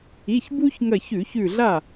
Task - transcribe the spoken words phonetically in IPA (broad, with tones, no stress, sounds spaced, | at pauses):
i˩˧˩ ç b u˦ ç ŋ ɐ˧˩ ç ʉ˧˩˧ ç ʉ˧˩ ɮ a˥˩